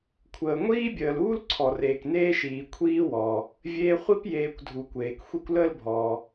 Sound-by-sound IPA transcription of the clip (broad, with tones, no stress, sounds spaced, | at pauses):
kʷʰ əː˩ ŋʷ iː˥ bʲ əː˩ l uː˥ l ǀʰ ɔ˩ r eː˩ k n eː˥ ʃ iː˩ kʷʰ iː˦ w ɔː˩ | vʲ eː˦ χʷ i˦ p j eː˨ kʷ dʱ u˨ kʷ eː˩ k xʷ i˦ kʷ l əː˥ l bʱ ɔː˩